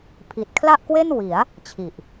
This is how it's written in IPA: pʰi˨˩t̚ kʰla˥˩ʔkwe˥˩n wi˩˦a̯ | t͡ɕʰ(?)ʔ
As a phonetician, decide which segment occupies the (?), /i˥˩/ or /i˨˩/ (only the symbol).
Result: i˨˩